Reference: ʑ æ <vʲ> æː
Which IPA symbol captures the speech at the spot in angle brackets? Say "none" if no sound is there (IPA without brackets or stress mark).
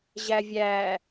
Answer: vʲ